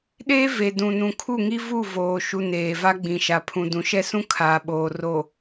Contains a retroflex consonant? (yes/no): no